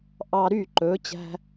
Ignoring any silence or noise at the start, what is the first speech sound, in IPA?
ʔ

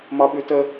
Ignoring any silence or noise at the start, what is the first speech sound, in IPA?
m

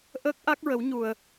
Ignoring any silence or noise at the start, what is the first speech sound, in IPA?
ʔ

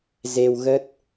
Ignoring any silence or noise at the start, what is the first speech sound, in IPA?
z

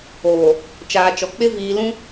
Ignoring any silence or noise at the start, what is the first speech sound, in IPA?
oː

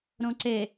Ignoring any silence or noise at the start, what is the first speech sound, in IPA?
ɾ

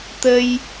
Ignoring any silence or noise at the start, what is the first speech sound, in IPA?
t̪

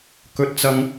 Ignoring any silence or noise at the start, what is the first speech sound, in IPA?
k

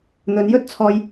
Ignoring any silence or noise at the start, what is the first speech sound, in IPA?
n̪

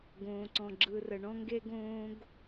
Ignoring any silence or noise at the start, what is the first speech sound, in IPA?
ɡ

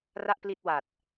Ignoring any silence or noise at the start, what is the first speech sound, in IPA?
r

